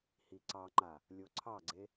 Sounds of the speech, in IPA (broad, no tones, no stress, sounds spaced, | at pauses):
h i ǀ ɑ ŋ͡ǃ a | lʲ o ǀʰ ɑ ɡ͡ǀ e